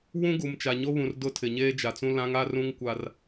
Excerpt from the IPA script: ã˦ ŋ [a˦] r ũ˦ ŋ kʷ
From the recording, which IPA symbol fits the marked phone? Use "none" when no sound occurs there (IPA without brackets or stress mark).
a˦